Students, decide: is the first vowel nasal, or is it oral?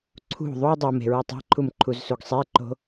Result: oral